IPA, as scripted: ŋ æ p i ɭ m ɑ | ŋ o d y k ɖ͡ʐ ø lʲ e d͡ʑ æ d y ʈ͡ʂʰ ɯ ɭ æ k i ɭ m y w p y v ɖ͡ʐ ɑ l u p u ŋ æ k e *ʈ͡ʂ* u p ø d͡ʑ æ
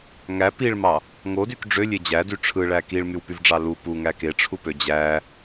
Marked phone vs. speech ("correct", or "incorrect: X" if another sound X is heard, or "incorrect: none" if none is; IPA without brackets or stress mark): incorrect: ʈ͡ʂʰ